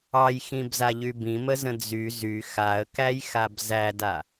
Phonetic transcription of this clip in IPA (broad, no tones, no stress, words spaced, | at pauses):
ɑjxĩbzaʎy bĩməzə̃ d͡zy zy xaə̯kæjxab zæda